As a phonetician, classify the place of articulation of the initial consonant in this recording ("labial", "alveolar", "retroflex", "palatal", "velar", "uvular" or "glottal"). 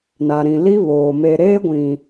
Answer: alveolar